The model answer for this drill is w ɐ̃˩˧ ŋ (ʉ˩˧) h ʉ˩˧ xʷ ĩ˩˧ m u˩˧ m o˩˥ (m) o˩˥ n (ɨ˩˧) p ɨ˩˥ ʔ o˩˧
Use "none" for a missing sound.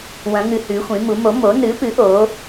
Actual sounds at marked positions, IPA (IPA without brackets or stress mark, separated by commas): ɨ˩˧, m, ɨ˩˥